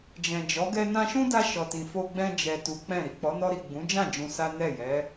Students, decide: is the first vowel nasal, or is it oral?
nasal